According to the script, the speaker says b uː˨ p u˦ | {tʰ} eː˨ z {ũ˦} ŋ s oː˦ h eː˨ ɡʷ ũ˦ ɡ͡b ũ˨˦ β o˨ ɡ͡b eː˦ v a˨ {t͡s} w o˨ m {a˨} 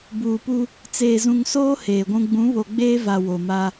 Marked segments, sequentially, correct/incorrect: incorrect, incorrect, incorrect, incorrect

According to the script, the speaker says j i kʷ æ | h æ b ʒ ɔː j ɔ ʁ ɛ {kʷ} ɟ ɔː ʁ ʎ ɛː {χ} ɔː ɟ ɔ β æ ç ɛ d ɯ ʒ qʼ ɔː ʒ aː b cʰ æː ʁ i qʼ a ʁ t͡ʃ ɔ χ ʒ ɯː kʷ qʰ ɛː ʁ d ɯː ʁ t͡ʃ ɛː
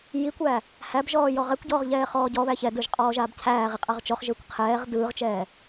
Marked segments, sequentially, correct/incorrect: correct, correct

